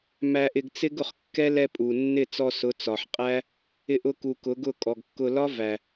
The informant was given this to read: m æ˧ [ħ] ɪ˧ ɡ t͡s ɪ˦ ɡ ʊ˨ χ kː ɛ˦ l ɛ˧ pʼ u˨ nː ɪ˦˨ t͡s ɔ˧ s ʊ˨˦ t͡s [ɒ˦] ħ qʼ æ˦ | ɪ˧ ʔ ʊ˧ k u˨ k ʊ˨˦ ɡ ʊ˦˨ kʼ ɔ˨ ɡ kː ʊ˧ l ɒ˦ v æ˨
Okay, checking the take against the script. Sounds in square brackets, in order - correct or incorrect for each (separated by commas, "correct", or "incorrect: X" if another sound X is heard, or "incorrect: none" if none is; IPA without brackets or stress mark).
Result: incorrect: ʔ, incorrect: ɒ˨